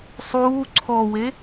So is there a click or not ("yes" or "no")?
yes